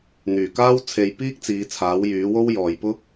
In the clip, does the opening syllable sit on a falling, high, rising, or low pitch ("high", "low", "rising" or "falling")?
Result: low